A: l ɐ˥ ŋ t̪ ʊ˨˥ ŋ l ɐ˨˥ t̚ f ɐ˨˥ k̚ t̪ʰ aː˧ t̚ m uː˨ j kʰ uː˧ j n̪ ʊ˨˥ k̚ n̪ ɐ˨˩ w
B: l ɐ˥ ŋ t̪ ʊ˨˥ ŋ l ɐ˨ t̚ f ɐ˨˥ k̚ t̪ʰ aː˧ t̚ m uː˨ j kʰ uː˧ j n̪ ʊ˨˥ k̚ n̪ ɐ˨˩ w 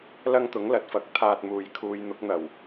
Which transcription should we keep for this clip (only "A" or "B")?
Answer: B